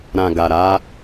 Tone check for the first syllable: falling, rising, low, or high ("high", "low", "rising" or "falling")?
low